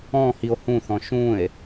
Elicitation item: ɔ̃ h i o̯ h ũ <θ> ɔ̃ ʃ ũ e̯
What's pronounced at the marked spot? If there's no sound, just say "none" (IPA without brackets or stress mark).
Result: θ